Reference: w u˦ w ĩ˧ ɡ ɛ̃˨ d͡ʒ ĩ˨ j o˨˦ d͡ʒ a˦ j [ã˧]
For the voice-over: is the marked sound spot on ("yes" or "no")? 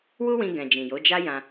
yes